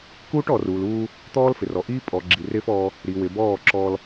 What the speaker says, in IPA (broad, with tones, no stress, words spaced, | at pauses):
kuː˦ʈɔː˨ruː˨luː˦ | t̪ɔː˦lfɪ˨rɔ˨ʔiː˦ pʼɔ˨ ɡ͡ǁi˨rɪː˦fɔː˦ | ɾi˨ wɪ˨bɔː˦˨ǁɔː˦l